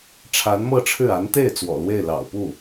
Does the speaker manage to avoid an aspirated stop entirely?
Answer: no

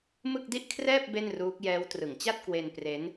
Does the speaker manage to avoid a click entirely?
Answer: yes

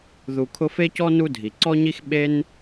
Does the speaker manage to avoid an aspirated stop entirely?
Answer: no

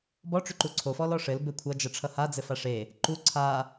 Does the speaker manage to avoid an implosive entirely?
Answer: yes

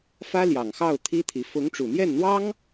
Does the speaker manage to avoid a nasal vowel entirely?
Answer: yes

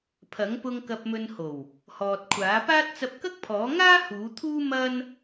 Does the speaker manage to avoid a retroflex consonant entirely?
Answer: yes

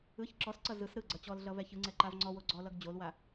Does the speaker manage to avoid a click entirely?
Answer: no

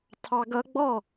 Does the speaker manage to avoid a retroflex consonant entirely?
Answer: yes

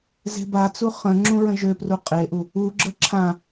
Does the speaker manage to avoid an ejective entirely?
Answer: no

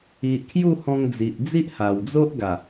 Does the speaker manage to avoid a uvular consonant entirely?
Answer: yes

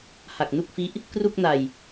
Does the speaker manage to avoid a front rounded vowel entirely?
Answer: yes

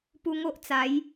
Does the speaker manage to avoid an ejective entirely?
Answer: yes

